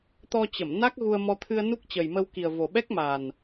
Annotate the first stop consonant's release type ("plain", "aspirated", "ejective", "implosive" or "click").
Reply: plain